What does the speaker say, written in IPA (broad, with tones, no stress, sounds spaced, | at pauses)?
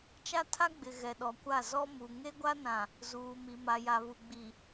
t͡ʃ a˦ tʰ a˦ ɡ͡b ɪ˨ ɣ ɛ˨ ɗ ɔ˨ kʷ a˦˨ z ɔ˦ m u˨ ŋ e˦ ɡʷ a˦ n ã˨ | z uː˨ m i˨ m a˨ j a˨ β u˨ ɡ͡b i˨